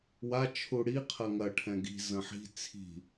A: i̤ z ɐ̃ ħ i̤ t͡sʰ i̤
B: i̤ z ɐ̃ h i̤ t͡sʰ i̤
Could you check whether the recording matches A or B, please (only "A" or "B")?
A